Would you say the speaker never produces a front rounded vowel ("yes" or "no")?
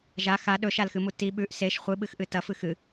yes